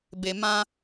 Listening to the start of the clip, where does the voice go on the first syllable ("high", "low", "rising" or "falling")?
low